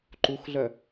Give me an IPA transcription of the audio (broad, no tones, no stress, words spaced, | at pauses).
ǃuxɮœ